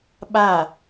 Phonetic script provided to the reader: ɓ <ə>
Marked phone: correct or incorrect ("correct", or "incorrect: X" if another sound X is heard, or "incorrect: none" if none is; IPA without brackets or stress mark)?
incorrect: a